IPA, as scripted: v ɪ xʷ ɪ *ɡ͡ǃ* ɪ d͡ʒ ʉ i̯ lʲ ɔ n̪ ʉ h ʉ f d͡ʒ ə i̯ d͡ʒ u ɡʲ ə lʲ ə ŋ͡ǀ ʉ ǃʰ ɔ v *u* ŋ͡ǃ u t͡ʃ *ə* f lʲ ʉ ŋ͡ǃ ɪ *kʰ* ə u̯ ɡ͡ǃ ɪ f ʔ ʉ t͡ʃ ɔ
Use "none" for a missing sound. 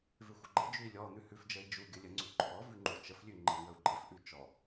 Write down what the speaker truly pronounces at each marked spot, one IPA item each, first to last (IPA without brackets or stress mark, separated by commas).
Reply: ɡ͡ǃ, ʉ, ə, ŋ